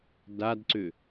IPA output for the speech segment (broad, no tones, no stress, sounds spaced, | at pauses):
d a d ǀ ʏ